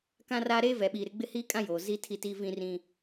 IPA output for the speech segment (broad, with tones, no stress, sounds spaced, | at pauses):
k ã˦ r aː˦ ɾ eː˦ v ɛ˨ ɓ iː˨ ɾ ɪ˦ ɡ͡b ɪ˦ h iː˦ kʼ ã˦ j oː˨ z i˦ tʰ i˦˨ t iː˦ v ĩ˦ r ĩ˦